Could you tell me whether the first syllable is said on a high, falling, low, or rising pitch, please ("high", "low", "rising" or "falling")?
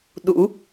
rising